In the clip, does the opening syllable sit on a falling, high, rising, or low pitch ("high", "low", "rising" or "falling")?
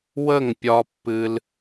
falling